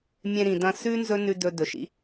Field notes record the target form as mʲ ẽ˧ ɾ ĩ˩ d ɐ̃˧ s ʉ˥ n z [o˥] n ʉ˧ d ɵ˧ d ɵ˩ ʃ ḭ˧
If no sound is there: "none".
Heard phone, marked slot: ɵ˥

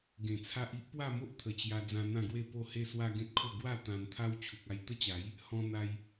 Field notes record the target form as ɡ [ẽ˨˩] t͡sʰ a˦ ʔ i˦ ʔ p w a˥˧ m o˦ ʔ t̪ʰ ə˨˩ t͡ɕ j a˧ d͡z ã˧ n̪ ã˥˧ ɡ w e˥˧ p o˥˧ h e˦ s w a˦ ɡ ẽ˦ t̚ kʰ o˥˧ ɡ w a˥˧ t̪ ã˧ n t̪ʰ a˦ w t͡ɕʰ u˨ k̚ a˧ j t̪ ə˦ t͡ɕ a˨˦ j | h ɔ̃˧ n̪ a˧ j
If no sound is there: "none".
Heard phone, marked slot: ẽ˨˩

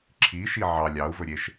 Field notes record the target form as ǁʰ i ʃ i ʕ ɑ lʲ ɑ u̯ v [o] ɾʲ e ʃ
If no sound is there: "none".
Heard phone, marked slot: ɵ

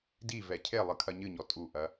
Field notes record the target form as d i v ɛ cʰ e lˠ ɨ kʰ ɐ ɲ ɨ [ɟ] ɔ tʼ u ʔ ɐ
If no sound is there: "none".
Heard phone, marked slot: ɲ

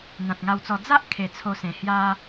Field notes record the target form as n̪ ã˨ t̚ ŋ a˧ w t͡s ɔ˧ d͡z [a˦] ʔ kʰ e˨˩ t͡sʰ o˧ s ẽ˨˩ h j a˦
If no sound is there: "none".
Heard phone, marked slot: a˦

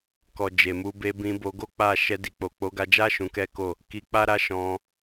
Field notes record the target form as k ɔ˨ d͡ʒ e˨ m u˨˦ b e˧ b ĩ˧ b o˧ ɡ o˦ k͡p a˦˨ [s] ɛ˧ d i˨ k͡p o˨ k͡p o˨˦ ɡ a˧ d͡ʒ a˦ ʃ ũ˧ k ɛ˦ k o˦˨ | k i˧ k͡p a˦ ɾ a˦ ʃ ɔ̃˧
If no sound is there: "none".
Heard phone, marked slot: ʃ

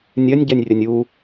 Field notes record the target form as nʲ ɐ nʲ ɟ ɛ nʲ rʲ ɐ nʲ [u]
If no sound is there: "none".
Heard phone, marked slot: u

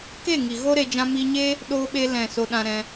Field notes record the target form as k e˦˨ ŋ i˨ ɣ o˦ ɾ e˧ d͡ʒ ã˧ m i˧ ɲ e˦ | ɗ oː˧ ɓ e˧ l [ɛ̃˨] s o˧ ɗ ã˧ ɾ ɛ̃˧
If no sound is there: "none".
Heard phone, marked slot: ɛ̃˨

